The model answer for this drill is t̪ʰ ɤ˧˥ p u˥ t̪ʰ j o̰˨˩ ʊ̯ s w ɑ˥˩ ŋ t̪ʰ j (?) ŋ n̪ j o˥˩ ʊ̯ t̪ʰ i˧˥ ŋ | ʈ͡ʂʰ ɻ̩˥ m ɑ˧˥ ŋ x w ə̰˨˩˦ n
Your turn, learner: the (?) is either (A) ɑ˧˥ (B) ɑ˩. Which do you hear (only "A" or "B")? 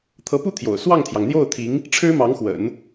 B